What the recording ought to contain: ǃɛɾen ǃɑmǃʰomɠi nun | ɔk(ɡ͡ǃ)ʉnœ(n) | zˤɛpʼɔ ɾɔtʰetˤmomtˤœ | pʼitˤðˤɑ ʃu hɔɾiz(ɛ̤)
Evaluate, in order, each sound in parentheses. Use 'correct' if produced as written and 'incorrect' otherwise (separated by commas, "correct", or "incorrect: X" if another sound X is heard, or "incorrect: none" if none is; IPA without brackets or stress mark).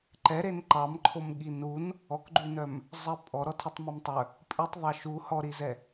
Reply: correct, incorrect: m, incorrect: ɛ